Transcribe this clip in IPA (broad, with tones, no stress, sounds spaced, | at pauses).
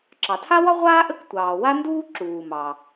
ǁ ɑ˩ tʰ a˥ w ɒ˥ ʁʷ aː˥ ʔ ə˥ k tʷ ɑː˩ w a˥ n d uː˥ ǁ uː˩ m ɑ˩